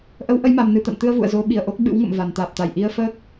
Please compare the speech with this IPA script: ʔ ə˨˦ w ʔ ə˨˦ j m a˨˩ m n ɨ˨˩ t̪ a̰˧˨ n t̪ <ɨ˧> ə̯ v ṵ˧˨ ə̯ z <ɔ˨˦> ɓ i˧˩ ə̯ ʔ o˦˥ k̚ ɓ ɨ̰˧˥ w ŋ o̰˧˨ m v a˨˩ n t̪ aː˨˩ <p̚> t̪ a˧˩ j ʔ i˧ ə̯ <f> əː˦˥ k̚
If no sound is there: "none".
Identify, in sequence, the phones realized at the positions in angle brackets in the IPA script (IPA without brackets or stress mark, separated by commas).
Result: ɨ˧, o˨˦, p̚, f